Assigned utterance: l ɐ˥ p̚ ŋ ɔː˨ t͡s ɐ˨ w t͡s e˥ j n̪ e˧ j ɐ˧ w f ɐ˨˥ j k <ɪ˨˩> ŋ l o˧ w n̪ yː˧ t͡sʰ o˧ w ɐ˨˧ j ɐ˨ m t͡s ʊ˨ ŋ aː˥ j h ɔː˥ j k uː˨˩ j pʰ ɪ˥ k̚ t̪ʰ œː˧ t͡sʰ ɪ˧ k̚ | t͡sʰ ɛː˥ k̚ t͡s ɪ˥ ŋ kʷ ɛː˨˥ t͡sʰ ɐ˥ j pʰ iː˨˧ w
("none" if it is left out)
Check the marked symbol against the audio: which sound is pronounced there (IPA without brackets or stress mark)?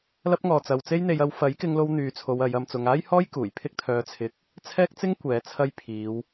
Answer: ɪ˧